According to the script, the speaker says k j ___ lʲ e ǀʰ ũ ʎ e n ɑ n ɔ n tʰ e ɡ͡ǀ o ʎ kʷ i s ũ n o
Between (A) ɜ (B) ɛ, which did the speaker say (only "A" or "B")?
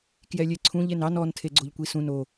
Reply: B